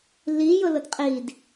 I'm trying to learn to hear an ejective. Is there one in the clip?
yes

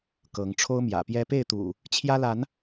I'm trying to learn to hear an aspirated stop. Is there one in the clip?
yes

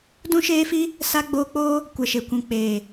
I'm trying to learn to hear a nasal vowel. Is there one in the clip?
yes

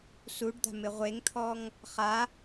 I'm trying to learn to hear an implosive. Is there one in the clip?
no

